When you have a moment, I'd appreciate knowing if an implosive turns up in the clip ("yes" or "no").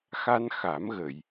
no